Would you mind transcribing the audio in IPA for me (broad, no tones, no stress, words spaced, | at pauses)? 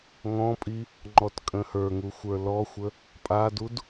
ŋɔ̃pʼi | ŋ͡ǃɔtkʼə̃hə˞ŋu xʷə˞lɔxʷə | pʼadud